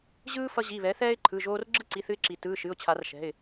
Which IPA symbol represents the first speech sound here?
ʑ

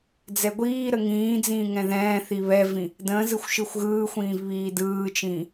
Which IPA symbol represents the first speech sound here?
d͡z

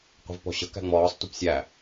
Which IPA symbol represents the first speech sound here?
qʷ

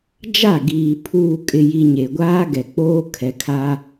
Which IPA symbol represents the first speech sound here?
d͡ʒ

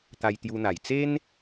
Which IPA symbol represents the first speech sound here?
t̪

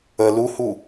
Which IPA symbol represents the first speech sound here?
ə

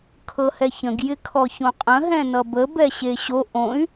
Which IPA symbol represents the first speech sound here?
kʰ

